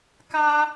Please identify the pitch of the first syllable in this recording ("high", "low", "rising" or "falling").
high